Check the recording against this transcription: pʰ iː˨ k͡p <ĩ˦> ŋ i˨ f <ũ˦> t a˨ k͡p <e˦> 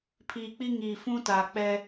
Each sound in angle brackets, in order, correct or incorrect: incorrect, correct, incorrect

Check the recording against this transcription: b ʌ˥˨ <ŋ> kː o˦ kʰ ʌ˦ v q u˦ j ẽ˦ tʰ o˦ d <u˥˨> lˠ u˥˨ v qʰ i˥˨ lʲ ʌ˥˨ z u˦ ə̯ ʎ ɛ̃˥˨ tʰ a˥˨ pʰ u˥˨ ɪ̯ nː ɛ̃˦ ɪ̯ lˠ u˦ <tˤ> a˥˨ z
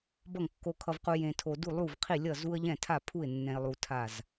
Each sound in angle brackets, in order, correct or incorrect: correct, correct, incorrect

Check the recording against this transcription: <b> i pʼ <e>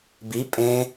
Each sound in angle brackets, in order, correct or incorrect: correct, incorrect

